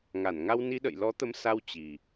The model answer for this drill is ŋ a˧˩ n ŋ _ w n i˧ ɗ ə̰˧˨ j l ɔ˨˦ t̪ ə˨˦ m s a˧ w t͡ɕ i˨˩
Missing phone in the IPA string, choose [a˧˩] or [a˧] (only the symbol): a˧